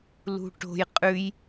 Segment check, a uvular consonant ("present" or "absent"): present